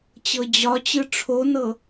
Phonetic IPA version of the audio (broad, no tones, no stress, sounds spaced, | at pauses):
t͡ɕ ɤ d͡ʑ ɒ t͡ɕ ɯ ʈ͡ʂʰ o n ɤ